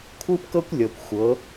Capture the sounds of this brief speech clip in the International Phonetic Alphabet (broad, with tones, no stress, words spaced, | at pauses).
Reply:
kʷʰɯ˦pkɤ˦kʷlʲɤ˨kʷ xʷɤ˨˦